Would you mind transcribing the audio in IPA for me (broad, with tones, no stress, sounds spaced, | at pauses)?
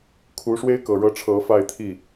kʰ u˧˥ ʂ w e˥ ɪ̯ k ɤ˨˩ ɻ ɤ˥˩ ʈ͡ʂʰ ɤ˧˥ f a˥˧ ɪ̯ t̪ʰ i˥˩